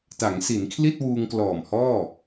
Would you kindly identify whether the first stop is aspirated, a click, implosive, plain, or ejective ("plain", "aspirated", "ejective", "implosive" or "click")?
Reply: plain